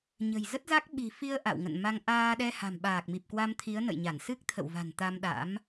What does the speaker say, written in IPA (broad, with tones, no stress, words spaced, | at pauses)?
ɲə̤˨˩jzə˦˥t̚za˦˥k̚ ɓi̤˨˩fi˧ə̯ ʔa̰˧˨wŋə̰˧˨nma˧ŋ ʔaː˧ɗɛ˧ ha̤˨˩mɓaː˨˩k̚mi˨˩p̚ kwa˧mt̪ʰi˨˦ə̯ nə̰˧˨jɲa˧˩n sɨ˦˥k̚t̪ʰə̰˧˨wva̤˨˩n t̪a˧mɗa̰˧˥m